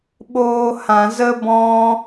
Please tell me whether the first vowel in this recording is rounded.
yes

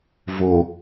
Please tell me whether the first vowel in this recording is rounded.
yes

